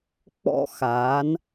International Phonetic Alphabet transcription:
k͡p ɔ̰˦ x aː˨˦ n

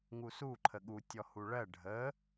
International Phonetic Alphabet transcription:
ŋ u s u ǃʰ ə ɠ u tʲ ɔ h u ɭ ɜ ɖʱ ə

